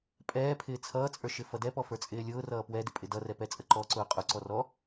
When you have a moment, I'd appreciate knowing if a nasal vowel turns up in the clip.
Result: no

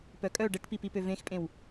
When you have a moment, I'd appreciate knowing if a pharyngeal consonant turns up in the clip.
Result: no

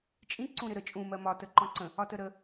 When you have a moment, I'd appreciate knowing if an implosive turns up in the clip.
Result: no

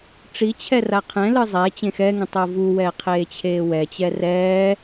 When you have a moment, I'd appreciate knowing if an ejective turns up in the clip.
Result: no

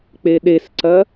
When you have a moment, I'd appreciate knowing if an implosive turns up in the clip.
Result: yes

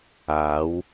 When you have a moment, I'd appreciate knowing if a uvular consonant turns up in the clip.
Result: no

